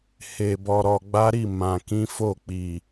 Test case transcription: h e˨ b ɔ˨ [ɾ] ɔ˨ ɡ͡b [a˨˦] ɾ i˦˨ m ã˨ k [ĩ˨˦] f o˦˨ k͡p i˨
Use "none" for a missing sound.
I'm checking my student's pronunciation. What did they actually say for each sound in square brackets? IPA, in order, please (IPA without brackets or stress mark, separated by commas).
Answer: ɾ, a˨˦, ĩ˨˦